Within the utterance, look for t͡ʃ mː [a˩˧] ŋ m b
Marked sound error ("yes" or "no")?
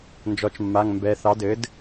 yes